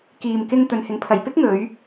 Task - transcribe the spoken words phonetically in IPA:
k iː˨ m k ɪ˧ ŋ t̪ ɵ˨˧ n h ɪ˨˥ ŋ pʰ ɐ˨ j p ɪ˥ k̚ ŋ ɵ˨˧ ɥ

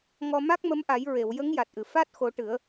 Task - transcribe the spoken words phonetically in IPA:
ŋ ɔ˧ m a˦˥ k̚ m ə˧˥ m ʔ a˨˩˦ j ɹ e˨˩˨ w j ə˧˥ ŋ j a˨˩ t̚ ʔ ɨ˨˩˨ f a˦˥ t̚ x o˨˩˦ ʈ ɨ˨˩˦ ə̯

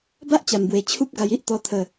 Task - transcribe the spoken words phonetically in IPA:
b a˦ ʔ t͡ɕ a˨˩ m b w e˨˩ t͡ɕʰ u˦ p̚ ɡ a˧ j i˦ ʔ t̪ ɔ˧ t̪ʰ ə˥˧

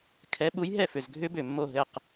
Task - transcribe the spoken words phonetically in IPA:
kʰ ɛ˨˥ ɓ u˨˥ j ɦ ɛ˥˨ f ʏ˨˩ z ɡʱ ʏ˦˥ b ʏ˨˩ mː o˥˨ ɦ ɘ˥˨ q

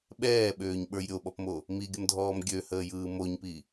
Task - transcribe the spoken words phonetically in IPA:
ɓ ɛː ɓ øː ɲ ɓ ə˞ j ɾʲ o ɓ ɔ p m o | m i ɡʲ ə m dʱ ɔː m ɡʲ ø h əː j ɯː m o ɲ p i

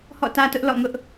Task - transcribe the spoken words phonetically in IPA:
h ɔ̰˦˨ t ä˦ t ʊ˦ ʔ l ɔ̰˦˨ ŋ ʊ˦ ʔ

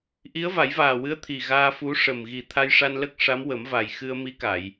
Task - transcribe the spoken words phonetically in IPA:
ʔ i˧˥ ə̯ v a˨˩˦ j v aː˨˩ w ɨ˧˥ ə̯ t̪ʰ i˨˩ ɣ aː˧ f u˧˥ ʂ ə˨˩ m ɣ i˨˩ t̪ʰ a˧ j ʂ a˧ n l ə˦˥ k̚ ʂ a˧˥ m w ə˨˩˦ m v a˨˩ j x ɨ˧ ə̯ m i˧˥ k a˨˩˨ j

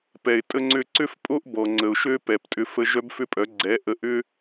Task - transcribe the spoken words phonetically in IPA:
p ɛ˨ ɪ̯ tʼ ə˦ ŋ͡ǀ ʏ˦ ǀ ʏ˦ f pʼ o˦ ʔ b ɔ˨ ŋ͡ǀ ə˨ ʊ̯ ʃ ø˦ p ɛ˨ p tʼ ʏ˦ f ə˦ ʒ œ˦ b f ʏ˦ pʼ œ˨˦ ɡ͡ǀ ɛ˨˦ ʔ ə˨˦ ʔ ʏ˦

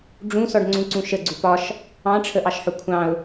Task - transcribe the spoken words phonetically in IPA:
ɖ͡ʐ ũ s ɔ ɖ ŋ͡ǀ ũ ǀ ũ ʃ ə ɡ͡ǀ u p ɒ ʃ | ɑ̃ ʈ͡ʂʰ ə ʔ ɑ ʃ ħ ʊ kʷʰ ɑ̃ ʊ̯

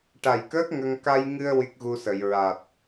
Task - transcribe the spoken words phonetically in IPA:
ʈ a˨˩ j k əː˦˥ k̚ ŋ ə˧ ŋ k a˧ j ŋ ɨ˧ ə̯ w i˦˥ k̚ ɣ u˧ s ə˨˩˨ j ɹ a˨˩ t̚

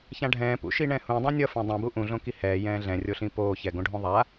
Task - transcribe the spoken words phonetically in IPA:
ç ã ɖʱ ɛ̃ː p ṵ ʃ i ɳ ɛ̃ h ũ dˤ ã nʲ ʌ f ẽ dˤ ũ b u ʔ ũ ɮ õ k i h ɛː j ɛ̃ː ɮ ɛ̃ rʲ o ɬ ĩ p oː ç ɛ ɡ õ ɖʱ õ ðˤ a

